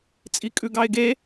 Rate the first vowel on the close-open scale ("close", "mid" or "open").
close